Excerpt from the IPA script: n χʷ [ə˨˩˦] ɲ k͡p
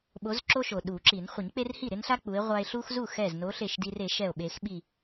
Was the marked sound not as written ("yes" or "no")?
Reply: yes